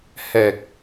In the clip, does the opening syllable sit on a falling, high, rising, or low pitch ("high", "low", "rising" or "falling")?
low